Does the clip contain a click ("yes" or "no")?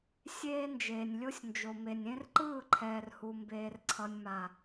yes